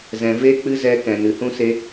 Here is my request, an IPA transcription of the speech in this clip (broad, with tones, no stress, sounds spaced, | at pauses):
z ɛ̃˨ v e˦ k͡p ɨ˦ z ɛ˧ k ɛ̃˨ n ɨ˨ h ũ˦ s e˦